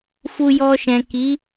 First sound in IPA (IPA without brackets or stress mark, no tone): f